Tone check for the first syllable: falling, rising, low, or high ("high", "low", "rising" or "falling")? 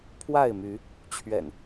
falling